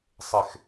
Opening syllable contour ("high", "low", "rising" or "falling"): low